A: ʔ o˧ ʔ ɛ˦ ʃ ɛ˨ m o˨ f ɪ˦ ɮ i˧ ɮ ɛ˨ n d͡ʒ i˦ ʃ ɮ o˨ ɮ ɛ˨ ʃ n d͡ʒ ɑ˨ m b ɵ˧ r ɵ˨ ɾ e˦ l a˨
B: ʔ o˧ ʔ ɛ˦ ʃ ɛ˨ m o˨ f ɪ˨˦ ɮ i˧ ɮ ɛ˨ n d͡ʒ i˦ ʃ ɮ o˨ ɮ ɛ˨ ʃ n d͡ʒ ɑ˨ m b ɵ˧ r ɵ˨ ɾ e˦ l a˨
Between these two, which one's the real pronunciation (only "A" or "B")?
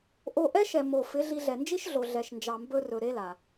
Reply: B